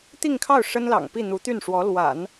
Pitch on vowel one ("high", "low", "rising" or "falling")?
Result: falling